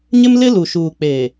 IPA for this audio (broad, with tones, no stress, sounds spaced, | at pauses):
ɲ ɪ˦ m l ɪ˦ l u˨ ʃ uː˨ k͡p eː˨